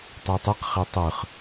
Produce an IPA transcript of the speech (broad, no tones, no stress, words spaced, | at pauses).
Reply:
tˤøtˤiqχe tˤɯχ